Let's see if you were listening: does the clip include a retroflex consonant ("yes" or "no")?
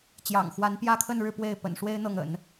yes